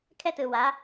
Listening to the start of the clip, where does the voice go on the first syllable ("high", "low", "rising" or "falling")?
high